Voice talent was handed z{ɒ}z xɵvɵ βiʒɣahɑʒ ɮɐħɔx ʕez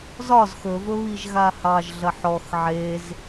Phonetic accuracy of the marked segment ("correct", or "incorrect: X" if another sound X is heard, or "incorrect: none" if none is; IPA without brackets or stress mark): correct